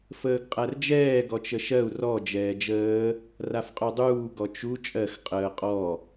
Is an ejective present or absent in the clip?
present